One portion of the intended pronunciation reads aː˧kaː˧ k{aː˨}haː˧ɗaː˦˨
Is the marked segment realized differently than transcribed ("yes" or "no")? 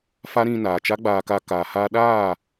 no